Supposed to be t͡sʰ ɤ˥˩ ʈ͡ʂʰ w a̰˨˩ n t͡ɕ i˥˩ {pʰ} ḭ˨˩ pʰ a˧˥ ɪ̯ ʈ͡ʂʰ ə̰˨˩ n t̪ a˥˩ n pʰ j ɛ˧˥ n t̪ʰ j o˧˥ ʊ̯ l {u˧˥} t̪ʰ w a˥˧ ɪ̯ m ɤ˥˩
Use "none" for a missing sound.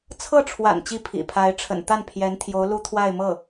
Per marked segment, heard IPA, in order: pʰ, u˥

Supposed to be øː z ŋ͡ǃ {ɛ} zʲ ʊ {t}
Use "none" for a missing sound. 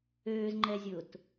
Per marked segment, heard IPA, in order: ɛ, t

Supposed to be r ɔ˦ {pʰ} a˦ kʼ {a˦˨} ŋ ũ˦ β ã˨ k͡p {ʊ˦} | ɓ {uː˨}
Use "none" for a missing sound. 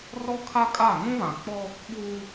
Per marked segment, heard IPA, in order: kʰ, a˦˨, ɔ˦, uː˦

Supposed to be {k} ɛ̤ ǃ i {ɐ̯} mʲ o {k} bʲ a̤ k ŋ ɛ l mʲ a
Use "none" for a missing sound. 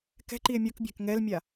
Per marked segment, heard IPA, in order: k, e̯, k

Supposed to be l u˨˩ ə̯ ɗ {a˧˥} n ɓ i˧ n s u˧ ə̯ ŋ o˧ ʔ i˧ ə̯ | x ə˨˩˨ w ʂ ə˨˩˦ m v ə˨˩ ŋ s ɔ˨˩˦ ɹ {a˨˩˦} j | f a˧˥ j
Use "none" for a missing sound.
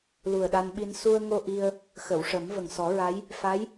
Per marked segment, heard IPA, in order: a˧, a˧˥

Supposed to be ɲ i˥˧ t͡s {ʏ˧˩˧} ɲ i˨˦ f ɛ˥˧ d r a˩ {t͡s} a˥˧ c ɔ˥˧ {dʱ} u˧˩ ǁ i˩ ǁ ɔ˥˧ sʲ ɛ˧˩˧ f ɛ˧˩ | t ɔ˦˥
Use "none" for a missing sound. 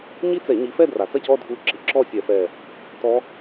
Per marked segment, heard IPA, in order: ɛ˧˩˧, t͡s, dʱ

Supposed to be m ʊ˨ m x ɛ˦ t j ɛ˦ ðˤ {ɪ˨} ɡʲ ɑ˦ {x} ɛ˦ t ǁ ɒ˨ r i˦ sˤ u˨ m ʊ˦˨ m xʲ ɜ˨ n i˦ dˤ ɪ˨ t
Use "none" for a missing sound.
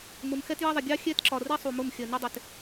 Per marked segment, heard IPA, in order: ɪ˨, xʲ

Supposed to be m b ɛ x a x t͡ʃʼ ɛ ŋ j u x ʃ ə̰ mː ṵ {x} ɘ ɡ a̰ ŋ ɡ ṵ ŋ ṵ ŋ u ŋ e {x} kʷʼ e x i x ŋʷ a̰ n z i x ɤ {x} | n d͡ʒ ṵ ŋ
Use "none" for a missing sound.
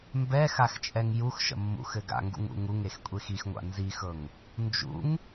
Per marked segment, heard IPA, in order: x, x, ŋ

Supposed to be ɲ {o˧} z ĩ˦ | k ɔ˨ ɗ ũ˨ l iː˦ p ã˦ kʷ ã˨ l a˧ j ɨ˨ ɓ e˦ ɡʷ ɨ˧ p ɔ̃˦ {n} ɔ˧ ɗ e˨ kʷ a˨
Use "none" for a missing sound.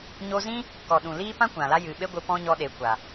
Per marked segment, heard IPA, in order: o˧, ɲ

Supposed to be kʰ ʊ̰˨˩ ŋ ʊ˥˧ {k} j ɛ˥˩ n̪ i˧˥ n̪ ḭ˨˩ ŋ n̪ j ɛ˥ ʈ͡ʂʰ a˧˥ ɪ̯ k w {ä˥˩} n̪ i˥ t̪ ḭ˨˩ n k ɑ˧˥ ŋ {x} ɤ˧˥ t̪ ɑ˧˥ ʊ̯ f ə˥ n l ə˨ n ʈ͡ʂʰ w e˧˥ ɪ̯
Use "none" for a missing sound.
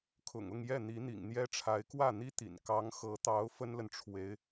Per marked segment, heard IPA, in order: ŋ, ä˥˩, x

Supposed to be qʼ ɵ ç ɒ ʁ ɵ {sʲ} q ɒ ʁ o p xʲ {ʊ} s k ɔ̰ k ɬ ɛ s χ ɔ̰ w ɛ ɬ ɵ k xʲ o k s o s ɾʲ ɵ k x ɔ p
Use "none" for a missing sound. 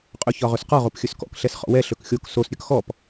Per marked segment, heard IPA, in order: s, ɵ

